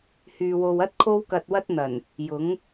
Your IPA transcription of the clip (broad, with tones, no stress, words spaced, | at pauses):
hyː˨wo˨wɐ˥t̚ kʰo˥wkɐ˧t̚wɐ˥t̚n̪ɐ˨˩n | jʊ˨˥ŋ